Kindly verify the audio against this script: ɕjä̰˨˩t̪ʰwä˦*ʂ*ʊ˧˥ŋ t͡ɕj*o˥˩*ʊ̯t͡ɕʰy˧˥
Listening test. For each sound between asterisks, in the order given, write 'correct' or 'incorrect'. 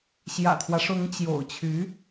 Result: correct, incorrect: o̰˨˩

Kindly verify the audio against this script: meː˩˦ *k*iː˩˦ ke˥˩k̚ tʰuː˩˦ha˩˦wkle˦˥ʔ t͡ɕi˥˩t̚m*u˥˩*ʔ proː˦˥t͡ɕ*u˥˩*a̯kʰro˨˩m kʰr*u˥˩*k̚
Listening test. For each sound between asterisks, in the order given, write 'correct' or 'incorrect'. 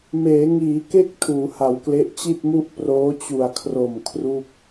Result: incorrect: ŋ, correct, incorrect: u˨˩, correct

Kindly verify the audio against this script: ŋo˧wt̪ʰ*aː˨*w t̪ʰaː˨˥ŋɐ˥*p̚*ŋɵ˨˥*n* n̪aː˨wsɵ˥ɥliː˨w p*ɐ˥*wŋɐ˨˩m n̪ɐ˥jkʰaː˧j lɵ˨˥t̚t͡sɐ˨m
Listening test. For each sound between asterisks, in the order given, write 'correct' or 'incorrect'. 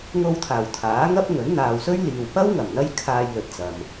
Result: incorrect: aː˨˩, correct, correct, correct

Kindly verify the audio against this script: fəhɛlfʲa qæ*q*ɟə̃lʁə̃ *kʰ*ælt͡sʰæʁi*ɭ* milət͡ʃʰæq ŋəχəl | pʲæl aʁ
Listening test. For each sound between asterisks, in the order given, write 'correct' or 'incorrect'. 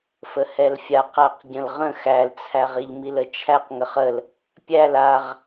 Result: correct, incorrect: x, incorrect: ʎ

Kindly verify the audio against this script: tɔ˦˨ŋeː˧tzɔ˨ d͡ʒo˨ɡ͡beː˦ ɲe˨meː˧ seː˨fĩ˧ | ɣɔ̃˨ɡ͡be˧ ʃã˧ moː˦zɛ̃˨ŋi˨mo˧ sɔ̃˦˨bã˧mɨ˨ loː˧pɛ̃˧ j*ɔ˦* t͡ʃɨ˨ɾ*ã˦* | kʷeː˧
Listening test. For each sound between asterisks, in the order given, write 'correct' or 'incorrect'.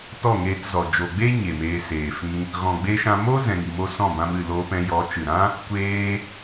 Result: incorrect: ɔ˨˦, correct

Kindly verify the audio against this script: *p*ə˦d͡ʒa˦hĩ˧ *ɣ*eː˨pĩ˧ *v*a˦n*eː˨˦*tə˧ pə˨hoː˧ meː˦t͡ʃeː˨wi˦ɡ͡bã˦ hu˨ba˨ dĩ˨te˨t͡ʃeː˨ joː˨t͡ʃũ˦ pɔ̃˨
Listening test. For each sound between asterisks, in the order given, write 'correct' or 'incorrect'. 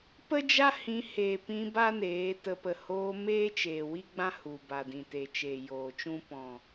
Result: correct, incorrect: h, incorrect: b, correct

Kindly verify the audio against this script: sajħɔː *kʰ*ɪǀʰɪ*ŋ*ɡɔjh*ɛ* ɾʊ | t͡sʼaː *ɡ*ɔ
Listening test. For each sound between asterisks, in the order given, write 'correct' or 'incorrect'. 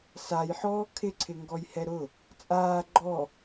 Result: correct, correct, correct, incorrect: ɡ͡ǃ

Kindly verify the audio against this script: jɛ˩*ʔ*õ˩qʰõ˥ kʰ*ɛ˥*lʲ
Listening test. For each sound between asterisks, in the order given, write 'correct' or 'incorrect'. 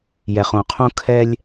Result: incorrect: χ, correct

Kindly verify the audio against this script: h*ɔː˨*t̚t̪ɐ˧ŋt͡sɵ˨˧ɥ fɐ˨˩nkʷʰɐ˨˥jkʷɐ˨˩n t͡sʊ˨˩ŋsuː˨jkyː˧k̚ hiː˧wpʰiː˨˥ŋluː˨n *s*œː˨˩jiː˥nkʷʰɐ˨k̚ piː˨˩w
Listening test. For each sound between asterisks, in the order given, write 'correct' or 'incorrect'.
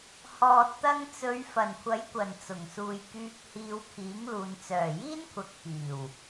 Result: correct, incorrect: t͡s

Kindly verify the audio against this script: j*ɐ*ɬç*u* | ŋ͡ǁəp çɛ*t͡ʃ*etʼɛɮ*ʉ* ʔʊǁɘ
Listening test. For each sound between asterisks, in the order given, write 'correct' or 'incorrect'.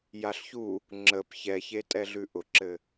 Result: incorrect: a, correct, incorrect: ç, correct

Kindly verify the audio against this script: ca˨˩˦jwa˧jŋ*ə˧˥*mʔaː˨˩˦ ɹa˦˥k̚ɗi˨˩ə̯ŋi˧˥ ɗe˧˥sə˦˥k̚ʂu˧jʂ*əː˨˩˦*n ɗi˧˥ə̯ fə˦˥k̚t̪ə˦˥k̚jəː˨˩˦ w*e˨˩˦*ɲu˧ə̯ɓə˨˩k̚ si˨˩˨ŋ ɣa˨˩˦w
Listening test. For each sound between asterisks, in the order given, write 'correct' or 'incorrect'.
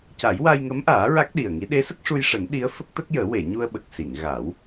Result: correct, correct, incorrect: e˨˩˨

